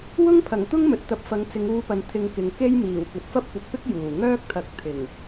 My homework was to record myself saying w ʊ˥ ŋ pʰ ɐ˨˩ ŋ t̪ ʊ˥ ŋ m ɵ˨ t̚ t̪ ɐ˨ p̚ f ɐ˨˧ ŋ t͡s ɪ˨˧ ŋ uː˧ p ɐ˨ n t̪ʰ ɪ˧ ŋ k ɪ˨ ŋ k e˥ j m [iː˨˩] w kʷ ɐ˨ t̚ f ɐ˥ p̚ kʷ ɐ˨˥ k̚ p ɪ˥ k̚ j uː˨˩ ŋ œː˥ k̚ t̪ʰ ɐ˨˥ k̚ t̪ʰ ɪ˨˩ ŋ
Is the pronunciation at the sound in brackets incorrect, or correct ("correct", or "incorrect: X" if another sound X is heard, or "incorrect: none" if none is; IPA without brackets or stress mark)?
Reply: correct